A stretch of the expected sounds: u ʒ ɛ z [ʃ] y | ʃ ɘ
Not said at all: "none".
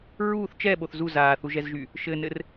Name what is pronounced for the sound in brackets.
ʒ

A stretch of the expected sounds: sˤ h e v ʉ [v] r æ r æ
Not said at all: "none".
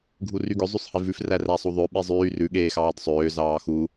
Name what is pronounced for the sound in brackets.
f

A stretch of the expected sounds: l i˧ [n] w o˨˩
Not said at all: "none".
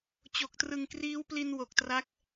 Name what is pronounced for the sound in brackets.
n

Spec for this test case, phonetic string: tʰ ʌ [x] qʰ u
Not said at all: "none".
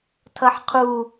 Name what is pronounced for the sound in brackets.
ħ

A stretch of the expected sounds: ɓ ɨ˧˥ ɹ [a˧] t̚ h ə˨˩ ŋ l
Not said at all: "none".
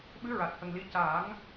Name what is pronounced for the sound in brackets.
a˨˩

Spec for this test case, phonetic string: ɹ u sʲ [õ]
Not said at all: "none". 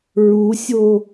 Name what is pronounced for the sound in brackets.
o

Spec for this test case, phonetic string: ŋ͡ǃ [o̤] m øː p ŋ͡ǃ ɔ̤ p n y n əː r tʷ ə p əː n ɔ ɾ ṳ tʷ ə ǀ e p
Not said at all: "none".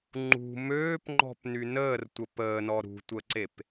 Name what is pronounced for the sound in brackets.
ṳ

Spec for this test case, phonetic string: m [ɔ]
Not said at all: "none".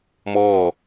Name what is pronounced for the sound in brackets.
ɔː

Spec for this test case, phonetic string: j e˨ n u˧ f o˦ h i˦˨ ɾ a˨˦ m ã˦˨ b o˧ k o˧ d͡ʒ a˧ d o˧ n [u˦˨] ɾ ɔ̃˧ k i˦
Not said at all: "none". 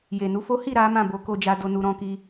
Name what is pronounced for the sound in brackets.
u˧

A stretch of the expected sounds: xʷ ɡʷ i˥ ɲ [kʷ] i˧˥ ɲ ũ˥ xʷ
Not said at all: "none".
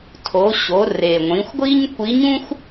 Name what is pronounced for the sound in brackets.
kʷ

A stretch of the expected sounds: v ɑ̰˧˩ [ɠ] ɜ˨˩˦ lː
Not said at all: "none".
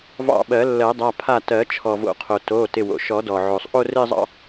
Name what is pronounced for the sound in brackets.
ɓ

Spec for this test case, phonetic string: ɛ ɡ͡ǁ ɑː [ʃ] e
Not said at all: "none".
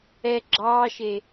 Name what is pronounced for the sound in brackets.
ʃ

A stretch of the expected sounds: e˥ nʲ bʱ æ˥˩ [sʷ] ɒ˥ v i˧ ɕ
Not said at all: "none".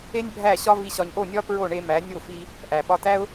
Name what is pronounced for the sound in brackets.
ɕ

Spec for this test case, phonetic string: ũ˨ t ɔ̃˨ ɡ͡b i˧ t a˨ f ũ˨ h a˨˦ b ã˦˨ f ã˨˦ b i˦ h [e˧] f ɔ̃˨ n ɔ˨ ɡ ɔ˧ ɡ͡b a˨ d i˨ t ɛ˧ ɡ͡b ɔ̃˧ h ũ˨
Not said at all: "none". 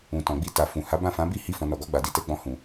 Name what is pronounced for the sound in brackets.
i˧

